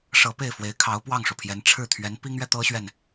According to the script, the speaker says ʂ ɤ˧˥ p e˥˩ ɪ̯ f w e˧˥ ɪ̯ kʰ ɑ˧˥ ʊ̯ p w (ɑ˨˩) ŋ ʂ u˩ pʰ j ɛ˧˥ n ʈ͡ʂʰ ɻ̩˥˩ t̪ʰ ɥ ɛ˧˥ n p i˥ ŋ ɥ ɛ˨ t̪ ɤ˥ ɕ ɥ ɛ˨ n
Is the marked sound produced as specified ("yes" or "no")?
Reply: no